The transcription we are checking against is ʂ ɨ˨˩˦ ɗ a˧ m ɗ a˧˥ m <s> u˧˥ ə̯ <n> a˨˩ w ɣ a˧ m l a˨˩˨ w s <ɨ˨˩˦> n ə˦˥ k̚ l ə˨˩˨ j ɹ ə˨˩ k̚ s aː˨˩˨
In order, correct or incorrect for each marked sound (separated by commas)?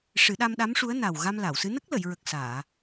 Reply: incorrect, correct, incorrect